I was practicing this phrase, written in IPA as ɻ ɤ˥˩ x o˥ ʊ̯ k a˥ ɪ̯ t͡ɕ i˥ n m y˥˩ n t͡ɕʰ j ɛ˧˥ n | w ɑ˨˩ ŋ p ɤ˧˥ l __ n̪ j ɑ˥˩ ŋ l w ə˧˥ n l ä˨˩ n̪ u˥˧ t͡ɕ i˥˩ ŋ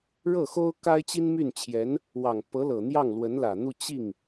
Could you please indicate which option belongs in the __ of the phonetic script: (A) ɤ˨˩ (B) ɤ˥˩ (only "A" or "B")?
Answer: A